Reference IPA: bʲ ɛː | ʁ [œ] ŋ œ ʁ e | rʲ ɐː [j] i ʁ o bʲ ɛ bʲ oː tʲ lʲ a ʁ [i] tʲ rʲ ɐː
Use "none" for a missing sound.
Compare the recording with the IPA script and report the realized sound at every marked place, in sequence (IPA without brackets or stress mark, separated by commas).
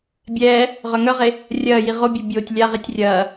œ, j, i